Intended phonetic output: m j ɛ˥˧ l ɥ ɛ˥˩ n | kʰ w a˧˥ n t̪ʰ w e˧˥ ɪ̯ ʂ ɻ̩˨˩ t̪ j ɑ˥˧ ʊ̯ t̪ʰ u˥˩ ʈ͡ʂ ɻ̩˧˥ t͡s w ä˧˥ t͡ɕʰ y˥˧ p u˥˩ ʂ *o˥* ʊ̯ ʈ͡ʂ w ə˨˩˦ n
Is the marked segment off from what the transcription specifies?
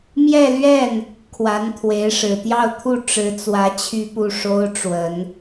no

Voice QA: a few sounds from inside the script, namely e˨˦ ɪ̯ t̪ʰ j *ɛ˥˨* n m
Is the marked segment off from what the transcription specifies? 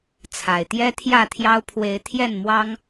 no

